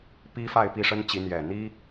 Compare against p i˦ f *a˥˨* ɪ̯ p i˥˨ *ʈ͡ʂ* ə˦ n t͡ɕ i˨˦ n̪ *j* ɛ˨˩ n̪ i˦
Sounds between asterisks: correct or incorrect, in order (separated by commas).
correct, incorrect, correct